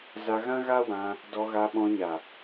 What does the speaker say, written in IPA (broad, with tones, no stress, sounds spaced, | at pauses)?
z a˧ ɣ ã˦ ɣ a˦ w ã˧ | d ɔ˧ ɣ a˧ ɓ ɔ̃˧ ɲ a˨